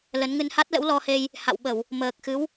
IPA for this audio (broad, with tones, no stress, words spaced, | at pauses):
lə˨˦nŋɨ˧n ha˦˥t̚lə̰˧˥wlɔ˧he˧j | ha̰˧˨wɓə˧˩˨w | məː˨˩k̚xɨ˨˦w